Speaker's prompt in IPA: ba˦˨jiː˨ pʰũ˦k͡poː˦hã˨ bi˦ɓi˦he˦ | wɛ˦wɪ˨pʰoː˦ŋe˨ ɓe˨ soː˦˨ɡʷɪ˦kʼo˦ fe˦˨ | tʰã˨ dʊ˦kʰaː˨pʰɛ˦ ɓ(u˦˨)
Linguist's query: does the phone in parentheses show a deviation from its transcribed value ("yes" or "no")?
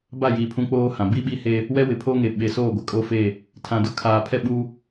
yes